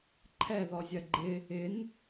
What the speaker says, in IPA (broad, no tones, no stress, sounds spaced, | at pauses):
ǃʰ ɛ ð ɔ zʲ ɜ ɡ͡ǃ ɪ | ɪ n